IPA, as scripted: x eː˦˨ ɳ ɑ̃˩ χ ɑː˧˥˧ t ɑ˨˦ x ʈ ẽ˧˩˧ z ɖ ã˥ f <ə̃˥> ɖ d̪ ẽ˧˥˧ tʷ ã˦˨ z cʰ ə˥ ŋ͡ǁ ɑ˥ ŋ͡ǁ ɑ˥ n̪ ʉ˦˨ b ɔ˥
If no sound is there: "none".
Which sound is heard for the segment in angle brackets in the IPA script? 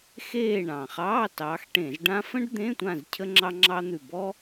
ə̃˥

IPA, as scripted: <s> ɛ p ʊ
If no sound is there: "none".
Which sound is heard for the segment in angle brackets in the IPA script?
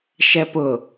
ʃ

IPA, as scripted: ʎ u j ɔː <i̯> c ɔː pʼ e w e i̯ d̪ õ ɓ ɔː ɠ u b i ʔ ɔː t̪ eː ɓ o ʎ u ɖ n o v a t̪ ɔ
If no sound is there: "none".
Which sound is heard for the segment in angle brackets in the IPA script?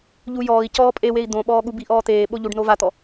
i̯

